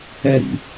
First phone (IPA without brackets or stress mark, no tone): ɛ